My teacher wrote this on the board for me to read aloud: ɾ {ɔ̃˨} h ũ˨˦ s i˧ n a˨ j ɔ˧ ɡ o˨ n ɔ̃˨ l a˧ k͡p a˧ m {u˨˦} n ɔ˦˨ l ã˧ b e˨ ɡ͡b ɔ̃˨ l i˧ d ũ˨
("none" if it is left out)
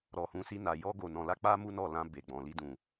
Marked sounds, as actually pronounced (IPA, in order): ɔ˨, u˦

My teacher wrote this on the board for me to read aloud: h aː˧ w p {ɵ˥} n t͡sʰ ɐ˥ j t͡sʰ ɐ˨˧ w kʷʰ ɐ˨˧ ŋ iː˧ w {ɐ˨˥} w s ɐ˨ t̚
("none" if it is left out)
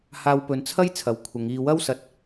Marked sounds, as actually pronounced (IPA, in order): ɵ˨˧, ɐ˥

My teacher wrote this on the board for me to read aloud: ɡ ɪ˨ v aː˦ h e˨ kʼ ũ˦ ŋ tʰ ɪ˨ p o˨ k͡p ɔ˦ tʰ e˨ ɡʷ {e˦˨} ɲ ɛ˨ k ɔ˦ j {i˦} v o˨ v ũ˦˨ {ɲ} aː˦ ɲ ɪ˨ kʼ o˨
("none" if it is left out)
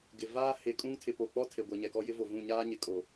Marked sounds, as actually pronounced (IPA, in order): e˨, ɪ˦, ɲ

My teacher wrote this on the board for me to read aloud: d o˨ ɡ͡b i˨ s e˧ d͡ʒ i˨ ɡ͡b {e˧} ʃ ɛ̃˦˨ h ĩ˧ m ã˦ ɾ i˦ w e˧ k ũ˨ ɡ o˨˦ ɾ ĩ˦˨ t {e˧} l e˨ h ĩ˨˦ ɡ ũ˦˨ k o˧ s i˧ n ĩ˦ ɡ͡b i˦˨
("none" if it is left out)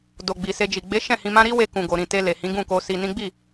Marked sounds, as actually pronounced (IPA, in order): e˨˦, e˧

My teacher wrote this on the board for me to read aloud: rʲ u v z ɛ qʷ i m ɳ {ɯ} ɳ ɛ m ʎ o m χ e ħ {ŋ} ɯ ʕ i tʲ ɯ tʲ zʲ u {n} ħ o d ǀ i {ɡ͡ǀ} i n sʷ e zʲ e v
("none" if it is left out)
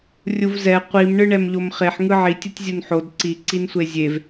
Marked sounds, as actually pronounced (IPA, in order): ɯ, ŋ, n, ǀ

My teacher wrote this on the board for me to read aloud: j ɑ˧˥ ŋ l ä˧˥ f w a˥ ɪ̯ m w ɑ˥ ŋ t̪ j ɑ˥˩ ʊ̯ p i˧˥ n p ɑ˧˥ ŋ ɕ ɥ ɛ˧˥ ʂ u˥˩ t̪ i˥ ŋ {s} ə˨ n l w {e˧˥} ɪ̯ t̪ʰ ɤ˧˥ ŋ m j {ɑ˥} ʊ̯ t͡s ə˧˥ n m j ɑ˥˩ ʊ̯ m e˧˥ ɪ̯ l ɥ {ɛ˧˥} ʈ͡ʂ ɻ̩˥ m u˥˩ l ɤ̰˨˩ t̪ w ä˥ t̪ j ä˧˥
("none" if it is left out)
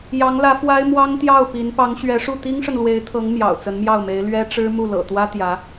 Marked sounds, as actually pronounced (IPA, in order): ʂ, e˧˥, ɑ̰˨˩, ɛ˥

